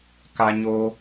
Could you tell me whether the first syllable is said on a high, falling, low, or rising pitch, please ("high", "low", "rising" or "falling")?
high